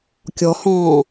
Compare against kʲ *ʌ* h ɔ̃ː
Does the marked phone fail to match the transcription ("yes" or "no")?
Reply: yes